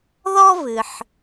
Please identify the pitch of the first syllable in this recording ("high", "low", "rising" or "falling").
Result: high